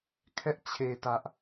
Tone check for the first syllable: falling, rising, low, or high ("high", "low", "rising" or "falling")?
high